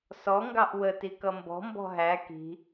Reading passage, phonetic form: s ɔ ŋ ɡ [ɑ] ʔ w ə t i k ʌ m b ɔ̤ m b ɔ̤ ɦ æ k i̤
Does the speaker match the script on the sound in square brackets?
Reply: yes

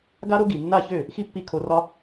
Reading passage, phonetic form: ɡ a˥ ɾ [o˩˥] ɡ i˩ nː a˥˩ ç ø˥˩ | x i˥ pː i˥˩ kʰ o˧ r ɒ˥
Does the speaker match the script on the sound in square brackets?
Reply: no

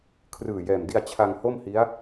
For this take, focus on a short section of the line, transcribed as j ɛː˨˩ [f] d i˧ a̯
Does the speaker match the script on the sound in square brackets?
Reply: no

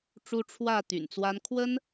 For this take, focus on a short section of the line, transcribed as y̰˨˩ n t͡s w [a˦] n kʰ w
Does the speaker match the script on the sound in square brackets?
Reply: yes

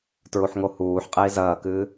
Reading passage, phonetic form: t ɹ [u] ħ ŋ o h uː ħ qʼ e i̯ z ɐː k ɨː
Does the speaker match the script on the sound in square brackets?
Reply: yes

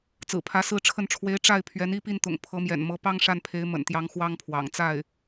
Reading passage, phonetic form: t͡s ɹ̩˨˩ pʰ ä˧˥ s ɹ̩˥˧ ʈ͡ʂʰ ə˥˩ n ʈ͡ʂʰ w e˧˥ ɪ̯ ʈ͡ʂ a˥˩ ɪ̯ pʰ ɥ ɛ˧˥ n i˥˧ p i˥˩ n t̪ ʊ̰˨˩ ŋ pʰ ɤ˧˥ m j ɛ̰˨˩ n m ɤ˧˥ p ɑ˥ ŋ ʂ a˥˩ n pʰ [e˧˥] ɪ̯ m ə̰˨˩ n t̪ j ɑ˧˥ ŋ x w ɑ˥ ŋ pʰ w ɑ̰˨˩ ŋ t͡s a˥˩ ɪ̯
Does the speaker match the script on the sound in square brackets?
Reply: yes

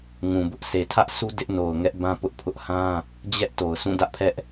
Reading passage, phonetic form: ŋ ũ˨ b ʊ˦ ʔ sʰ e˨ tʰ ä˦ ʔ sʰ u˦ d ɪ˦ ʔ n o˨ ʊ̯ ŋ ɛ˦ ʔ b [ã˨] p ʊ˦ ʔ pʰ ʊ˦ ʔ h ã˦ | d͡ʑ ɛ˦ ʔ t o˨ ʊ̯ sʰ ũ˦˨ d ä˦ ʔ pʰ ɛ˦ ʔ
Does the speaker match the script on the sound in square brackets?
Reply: no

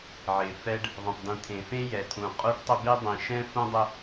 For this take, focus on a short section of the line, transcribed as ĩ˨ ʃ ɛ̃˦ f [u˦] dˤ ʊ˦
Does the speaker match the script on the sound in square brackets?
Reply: no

